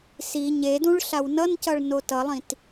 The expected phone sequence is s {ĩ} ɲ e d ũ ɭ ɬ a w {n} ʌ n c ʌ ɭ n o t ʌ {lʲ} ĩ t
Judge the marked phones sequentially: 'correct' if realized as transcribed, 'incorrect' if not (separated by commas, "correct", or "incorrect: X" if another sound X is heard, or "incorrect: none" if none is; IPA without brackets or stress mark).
incorrect: i, correct, incorrect: lˠ